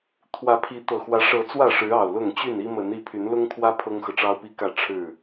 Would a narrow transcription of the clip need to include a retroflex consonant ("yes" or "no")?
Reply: yes